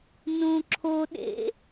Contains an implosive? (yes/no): yes